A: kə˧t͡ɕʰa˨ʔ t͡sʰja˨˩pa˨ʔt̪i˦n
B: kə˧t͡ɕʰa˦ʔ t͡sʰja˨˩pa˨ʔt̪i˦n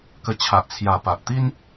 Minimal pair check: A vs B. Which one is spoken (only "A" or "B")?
A